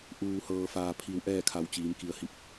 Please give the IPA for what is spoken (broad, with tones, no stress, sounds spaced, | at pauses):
ʔ uː˩ h ɤː˩ f aː˩ pʰ i˩˧ w ʔ ɛː˥˨ kʰ a˧˩ w t͡ɕ iː˩˧ m k i˩ ə̯ h i˧˩ p̚